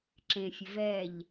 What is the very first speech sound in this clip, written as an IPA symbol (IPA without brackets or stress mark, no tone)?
ǁ